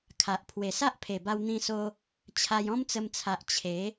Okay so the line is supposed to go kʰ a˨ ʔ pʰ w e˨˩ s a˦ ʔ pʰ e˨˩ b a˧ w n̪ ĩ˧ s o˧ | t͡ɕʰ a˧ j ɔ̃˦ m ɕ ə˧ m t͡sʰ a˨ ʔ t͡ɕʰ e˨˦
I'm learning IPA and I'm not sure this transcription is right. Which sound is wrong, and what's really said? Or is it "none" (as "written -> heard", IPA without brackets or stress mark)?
ɕ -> t͡s